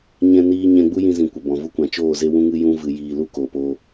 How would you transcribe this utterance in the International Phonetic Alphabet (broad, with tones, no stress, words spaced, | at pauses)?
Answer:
ɲɛ̃˧niː˧ ɲɛ̃˧ɡ͡bu˦ jĩ˧zĩ˨ kʷə˨bɔ̃˨ vu˧kʷã˨ t͡ʃoː˦˨ ze˦wũ˦ŋɨ˦jũ˦ vɨ˧jiː˧ lu˦koː˨poː˧